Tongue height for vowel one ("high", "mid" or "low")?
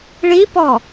high